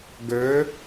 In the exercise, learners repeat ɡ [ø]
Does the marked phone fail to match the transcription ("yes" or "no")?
no